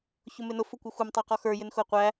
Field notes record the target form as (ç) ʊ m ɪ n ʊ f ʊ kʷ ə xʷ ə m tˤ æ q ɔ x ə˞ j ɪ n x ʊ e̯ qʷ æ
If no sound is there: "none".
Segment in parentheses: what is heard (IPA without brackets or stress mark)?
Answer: ç